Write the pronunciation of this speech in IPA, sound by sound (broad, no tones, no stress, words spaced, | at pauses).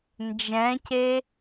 nd͡ʒɛ̃ce